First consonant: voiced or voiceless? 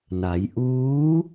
voiced